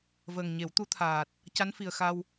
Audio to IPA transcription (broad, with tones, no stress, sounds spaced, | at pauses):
v əː˨˩ ŋ ɲ e˨˩˦ w t̪ u˧˥ t̪ʰ aː˨˩ t̚ | c a˧˥ n f i˨˩ ə̯ x a˧ w